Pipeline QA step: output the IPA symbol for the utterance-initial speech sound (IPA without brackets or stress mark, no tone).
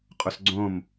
qʼ